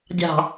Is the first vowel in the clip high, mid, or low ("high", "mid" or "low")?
low